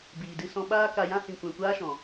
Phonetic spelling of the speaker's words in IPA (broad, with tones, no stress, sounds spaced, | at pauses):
b iː˨ d ɨ˧ s ɔ̃˧ ɓ aː˦ k a˧ j ã˦ h ĩ˨ kʷ ɛ̃˨ kʷ aː˧ ʃ ɔ̃˨